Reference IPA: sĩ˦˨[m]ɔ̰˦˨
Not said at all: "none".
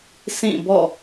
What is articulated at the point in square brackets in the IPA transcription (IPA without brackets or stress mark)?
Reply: b